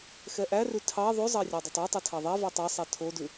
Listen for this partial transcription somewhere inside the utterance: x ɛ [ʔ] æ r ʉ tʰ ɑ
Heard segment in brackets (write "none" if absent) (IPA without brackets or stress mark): ʔ